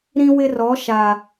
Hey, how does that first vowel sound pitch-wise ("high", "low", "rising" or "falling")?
high